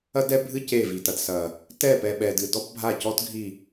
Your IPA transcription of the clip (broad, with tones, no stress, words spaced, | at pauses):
ɐ˦ dɛ˦bʱɨ˦ ce˦˨vi˨tɐ˨d sɐ˨ | tɛ˦˨pɛ˨ ɓɛ˨dɨ˨ dɔ˦pbʱa˦˨cɔ˦t ɡʱi˦˨